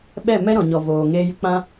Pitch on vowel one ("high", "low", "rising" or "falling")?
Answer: falling